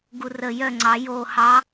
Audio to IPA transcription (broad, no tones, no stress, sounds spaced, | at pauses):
ɡ u r ə j œ ŋ͡ǀ ɑ j o h ɑ